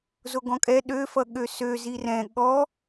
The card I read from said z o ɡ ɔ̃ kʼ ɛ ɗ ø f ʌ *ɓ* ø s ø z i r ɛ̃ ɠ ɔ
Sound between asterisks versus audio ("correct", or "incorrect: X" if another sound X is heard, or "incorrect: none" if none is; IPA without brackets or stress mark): incorrect: ɠ